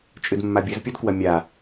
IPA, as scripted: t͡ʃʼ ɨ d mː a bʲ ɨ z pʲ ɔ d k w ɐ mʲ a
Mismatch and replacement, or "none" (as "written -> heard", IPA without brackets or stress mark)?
none